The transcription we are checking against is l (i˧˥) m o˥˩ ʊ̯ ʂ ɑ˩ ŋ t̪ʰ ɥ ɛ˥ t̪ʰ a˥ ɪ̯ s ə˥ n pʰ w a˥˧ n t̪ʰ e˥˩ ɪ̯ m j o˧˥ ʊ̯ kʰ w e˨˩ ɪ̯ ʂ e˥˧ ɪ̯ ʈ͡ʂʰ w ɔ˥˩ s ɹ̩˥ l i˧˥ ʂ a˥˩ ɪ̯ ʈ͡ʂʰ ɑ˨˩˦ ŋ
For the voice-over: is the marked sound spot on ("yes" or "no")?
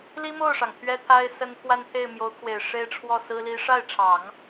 no